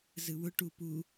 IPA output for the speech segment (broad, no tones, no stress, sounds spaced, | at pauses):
z ɯ w ʊ ʈ u p u